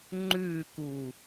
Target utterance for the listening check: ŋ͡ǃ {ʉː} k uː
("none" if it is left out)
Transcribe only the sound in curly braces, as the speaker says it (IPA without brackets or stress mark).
ʉː